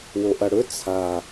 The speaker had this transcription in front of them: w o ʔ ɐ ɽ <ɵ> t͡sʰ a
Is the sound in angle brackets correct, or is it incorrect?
correct